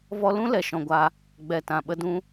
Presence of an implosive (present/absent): present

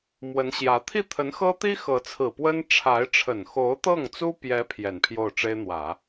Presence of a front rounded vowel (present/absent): absent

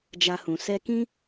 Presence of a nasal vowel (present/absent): present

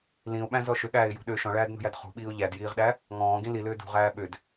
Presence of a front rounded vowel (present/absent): present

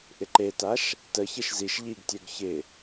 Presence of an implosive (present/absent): absent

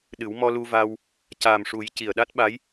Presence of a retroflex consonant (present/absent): present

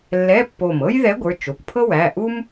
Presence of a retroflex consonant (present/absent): absent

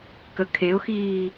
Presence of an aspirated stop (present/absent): present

